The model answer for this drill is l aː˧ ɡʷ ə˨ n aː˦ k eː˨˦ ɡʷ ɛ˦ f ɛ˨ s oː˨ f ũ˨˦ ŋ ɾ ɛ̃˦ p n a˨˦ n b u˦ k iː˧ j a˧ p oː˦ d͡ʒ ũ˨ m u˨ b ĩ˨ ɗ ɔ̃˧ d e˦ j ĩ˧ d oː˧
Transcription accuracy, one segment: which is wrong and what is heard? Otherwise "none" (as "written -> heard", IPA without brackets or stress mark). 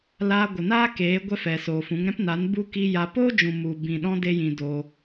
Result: none